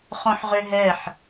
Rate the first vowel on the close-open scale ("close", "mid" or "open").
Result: mid